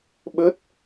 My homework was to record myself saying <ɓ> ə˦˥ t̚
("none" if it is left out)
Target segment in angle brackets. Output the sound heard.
ɓ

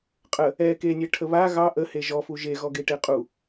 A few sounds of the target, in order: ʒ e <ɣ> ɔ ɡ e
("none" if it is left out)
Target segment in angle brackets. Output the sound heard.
ɣ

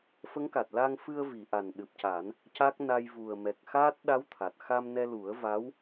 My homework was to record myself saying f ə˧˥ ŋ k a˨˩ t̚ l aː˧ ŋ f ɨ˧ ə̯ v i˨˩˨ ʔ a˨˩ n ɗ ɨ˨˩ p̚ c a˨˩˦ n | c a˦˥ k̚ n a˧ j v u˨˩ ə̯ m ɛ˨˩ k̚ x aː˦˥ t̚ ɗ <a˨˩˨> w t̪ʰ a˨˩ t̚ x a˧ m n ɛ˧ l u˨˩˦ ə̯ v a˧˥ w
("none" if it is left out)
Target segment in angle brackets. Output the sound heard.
a˧˥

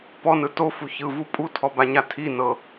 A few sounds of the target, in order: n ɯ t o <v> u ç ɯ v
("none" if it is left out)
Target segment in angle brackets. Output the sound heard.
f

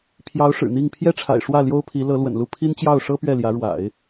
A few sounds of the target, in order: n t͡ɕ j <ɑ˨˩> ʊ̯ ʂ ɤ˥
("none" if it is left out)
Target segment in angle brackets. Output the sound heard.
ɑ˥˩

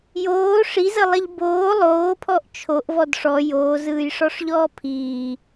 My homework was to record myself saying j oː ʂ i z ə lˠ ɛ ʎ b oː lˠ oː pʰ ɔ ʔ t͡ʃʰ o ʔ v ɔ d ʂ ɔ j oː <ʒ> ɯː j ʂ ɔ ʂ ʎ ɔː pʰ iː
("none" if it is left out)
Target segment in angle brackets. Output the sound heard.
z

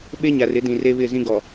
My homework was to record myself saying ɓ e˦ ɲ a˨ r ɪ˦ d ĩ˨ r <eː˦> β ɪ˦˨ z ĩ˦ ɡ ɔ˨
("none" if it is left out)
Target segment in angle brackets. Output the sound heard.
e˦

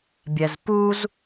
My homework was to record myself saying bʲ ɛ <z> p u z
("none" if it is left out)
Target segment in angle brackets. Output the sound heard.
z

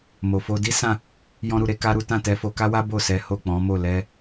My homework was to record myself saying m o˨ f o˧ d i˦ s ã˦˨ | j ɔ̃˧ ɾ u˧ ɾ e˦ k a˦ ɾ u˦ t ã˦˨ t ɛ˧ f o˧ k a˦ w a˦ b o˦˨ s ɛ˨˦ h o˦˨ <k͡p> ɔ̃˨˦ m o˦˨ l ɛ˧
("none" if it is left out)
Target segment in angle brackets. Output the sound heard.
k͡p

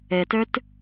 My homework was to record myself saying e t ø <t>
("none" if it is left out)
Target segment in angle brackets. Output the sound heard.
t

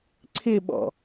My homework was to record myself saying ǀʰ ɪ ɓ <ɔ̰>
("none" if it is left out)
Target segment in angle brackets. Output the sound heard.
ɔ̰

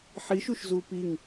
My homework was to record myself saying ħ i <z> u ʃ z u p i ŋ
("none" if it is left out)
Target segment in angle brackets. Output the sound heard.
ʃ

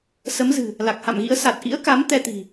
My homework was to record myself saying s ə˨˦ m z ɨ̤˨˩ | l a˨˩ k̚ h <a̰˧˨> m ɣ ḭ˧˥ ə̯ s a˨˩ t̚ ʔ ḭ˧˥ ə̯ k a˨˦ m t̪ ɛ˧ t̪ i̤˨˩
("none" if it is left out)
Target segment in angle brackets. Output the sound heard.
a̰˧˨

